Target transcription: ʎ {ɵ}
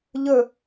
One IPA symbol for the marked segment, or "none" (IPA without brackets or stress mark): ɵ